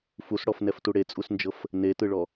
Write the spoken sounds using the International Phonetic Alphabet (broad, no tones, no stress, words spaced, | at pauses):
fusɽɔfnɛftu ɽet͡sʼusnd͡ʒɤf | netɯɭɔ